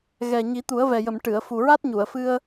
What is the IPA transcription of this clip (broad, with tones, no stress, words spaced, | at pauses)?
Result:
ɣɛ˨˩ ɲi˨˩˦t̪u˨˩˦ə̯vɛ˨˩jə˨˩˨m ʈɨ˨˩˨ə̯ fu˨˩ɹa˦˥t̚ɲu˨˩˨ə̯fɨ˧ə̯